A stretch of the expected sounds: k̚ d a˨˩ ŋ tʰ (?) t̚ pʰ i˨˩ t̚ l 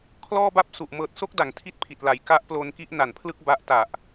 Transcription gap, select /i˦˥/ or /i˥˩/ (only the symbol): i˥˩